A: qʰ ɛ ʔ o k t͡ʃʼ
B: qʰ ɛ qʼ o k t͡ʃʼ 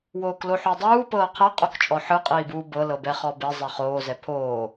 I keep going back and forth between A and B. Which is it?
B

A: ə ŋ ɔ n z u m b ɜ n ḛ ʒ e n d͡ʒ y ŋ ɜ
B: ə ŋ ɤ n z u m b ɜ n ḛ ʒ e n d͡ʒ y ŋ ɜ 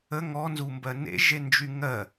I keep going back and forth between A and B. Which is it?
A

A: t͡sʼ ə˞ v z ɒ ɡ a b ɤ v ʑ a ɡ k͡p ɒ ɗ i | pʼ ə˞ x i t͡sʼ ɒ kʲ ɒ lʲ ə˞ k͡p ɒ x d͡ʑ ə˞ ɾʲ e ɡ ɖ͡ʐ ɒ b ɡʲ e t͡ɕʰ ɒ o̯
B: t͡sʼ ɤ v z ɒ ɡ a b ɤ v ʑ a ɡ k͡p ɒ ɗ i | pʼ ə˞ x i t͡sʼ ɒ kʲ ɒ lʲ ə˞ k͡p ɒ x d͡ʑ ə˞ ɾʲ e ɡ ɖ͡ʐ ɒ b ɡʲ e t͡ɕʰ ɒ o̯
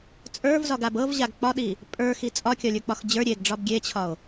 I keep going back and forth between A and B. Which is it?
A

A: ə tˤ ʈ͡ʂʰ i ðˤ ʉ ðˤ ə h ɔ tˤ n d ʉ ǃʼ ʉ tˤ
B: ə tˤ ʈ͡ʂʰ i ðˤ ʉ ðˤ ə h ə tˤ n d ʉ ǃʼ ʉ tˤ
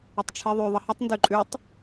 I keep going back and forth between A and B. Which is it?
B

